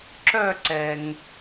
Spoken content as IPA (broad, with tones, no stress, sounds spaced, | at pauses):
ǁ œ˥˧ ǀ ɛ˩ ŋ